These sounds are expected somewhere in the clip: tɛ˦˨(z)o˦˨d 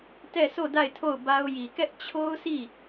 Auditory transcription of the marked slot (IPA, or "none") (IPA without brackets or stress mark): s